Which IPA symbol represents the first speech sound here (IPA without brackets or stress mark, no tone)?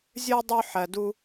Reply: zʲ